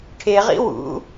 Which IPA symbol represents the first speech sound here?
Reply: ʈʰ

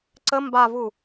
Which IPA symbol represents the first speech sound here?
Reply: ǀ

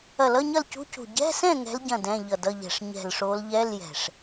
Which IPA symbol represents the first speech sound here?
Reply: ɐ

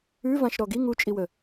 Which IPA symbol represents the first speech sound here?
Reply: ʉ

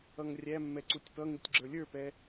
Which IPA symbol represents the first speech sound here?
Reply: ʌ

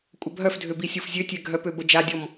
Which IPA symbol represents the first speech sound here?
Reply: kʷʼ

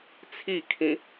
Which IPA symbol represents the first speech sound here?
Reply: t͡sʰ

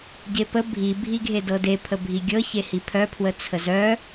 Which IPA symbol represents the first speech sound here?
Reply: ɟ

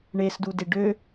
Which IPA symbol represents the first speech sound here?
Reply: ɳ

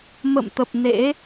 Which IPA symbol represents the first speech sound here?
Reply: m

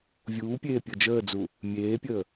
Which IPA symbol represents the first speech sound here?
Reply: vʲ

